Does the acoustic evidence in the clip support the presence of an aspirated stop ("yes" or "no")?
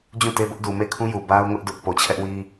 yes